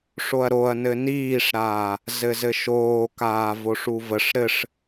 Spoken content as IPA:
ʂ o ɐ̯ ɾ o ɐ̯ n ɘ n iː ʂ ɾ aː | z ɘ z ɘ ʃ oː k aː v o ʂ u v ə ʂ ɾ ɘ ʂ

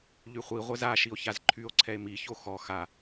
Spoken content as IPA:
ʎ y χʷ i ʁʷ ɛ z a ʃ i o̯ ç a z ǃʰ y o̯ ǀʰ ɛ e̯ m i ç o x ɔ x a

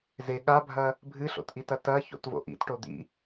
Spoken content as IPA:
z e ɠ a bʱ ɐ | bʱ ɨ ɬ o̰ t ʔ i t ɐ t ɐ ç o̰ t v o̰ ʔ ḭ t ʈ o d̪ ḭ

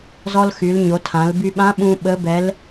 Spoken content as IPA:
z ɔ˧ l x y˩˧ l ɲ o˩˧ tʰ ã˩˧ l b y˧ ɓ ã˧˥ ɓ ũ˧ ɓ ə˧˥ b ɛ˧˥ l

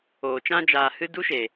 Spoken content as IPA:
oː˨ t͡ʃ ã˧ d͡ʒ aː˨ h ɨ˧ d u˦ ʃ e˨

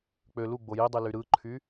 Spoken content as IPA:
k͡p ø l u ɡ͡b o j i dˤ i l y ɾ ɯ ǃʰ y

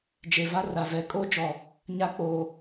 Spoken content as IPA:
d͡ʒ e˨ v a˦ r a˨ v ɛ˨ kʼ o˦ d͡ʒ ɔ˨ | ɲ a˦ k͡p oː˨

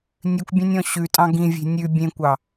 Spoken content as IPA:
nʲ ʉ kʷ bʲ ɑ̃ nʲ ɔ̃ ɕ ʉ tʼ ɑ̃ ɡ ĩ vʲ e̤ nʲ ʉ bʲ ẽ kʷ ɑ

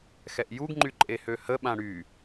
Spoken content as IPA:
x ɛ ʔ j u ɡ ŋ͡ǃ y ǃʼ e h ø h ə ɓ ã ɽ y

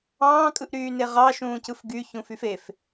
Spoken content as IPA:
ɑ̃ː kʼ ɯ ʔ ɾ yː n e ʁ ɑ ʃ ũː c ɯ f ɡ y ç ũ f y f e f

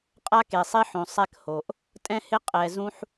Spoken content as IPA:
qʼ a˦ k e˨ sˤ i˦ ħ õ˨ sˤ ɛ˦ k h o˨ ʔ | tʼ ɛ̃˦ h ɪ˦ qʼ ɛ˨ z ũ˦ ħ

